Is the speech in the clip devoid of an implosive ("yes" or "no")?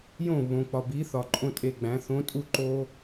yes